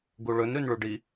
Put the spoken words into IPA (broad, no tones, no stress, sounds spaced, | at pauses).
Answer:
ɡ u ɭ ɵ n ɾ ʉ n ɭ u ɖ i